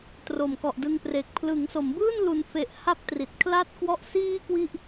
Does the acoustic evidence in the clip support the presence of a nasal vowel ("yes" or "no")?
no